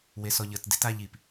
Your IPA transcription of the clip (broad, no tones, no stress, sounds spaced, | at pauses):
w e s ɔ ʎ ə t d e̤ t a ʎ i p